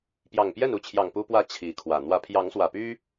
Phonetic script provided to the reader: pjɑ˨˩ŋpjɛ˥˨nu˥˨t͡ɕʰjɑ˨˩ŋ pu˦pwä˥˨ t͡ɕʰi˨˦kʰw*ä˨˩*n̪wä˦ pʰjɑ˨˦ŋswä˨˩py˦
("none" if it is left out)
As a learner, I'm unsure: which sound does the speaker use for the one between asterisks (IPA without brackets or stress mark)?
ä˨˩